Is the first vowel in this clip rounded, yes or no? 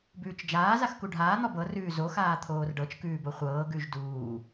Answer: yes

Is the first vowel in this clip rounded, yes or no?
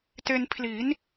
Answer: no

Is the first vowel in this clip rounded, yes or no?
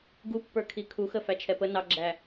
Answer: yes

